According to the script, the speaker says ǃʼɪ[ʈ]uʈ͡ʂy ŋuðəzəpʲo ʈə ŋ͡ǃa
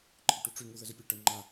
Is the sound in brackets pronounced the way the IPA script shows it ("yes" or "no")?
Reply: yes